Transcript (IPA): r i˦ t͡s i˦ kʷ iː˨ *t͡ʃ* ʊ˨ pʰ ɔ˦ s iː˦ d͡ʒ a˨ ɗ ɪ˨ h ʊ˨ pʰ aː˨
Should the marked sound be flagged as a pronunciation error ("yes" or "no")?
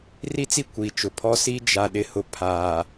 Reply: no